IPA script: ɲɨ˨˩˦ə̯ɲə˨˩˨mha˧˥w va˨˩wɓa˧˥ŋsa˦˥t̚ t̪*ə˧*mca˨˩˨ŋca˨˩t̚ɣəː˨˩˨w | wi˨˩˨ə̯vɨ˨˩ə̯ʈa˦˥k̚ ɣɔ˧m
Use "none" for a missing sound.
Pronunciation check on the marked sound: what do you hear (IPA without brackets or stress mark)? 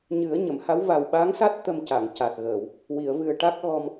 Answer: ə˧